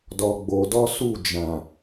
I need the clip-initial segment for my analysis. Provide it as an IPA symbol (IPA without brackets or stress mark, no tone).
d